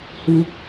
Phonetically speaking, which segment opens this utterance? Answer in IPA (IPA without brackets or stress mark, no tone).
h